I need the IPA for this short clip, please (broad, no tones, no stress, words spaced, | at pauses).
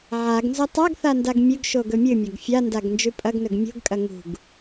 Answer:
ʕaɡnzɵ tˤaɡθa ndaɡmʲɵɡʃo ɡɵmʲɨmʲɐɡ fʲandaɡ nd͡ʒʉpʼɐɡnɵɡ mʲo̤ɡkʼɐ ŋṳɡ